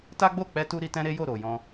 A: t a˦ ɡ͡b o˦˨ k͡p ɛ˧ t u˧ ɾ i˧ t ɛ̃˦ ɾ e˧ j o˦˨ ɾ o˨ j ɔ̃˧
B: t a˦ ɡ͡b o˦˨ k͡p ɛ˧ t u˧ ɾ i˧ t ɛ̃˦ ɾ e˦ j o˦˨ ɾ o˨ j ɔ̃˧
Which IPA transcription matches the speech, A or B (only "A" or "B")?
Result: B